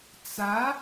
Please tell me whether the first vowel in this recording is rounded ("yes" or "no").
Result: no